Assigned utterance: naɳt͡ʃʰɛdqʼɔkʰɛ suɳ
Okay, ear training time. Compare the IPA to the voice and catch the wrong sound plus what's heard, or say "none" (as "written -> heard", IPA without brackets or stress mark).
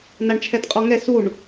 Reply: kʰ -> ŋ